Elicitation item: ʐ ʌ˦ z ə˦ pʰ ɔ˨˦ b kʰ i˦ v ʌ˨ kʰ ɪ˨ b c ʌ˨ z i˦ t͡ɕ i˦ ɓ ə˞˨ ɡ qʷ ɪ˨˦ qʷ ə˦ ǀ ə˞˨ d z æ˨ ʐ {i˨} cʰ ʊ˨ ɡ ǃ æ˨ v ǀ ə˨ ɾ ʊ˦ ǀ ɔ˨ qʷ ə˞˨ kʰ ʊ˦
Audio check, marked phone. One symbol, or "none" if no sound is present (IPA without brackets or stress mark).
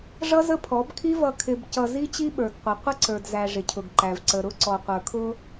ɪ˨